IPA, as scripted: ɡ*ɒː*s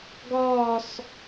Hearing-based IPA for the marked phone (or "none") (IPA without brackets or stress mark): ɒː